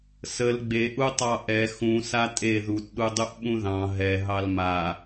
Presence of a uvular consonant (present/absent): absent